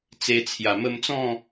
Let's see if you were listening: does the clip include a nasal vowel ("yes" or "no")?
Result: yes